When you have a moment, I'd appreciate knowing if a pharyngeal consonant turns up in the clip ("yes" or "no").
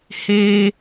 no